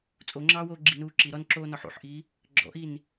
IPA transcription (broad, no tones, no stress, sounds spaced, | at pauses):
t͡sʼ o ŋ͡ǁ ɑː w oː ɡ͡ǁ i n uː ǁ i ɾ ɔ n ǁ oː n ɔ ħ ṵ ħ ʔ i | ɡ͡ǁ ɔ̰ ʔ i n